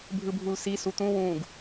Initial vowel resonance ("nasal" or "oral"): oral